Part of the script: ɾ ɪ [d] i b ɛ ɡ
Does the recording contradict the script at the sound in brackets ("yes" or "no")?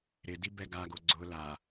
no